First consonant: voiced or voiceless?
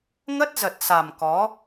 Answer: voiced